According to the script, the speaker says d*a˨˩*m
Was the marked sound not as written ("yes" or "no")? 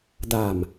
no